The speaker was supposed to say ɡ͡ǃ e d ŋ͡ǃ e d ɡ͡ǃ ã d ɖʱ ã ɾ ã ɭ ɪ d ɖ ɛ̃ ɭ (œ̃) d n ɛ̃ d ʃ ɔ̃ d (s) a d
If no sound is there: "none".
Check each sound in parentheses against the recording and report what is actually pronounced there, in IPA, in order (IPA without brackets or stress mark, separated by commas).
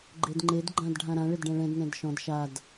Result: ɛ̃, ʃ